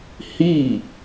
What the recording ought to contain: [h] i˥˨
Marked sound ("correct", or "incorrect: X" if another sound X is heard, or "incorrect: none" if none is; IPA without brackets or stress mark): correct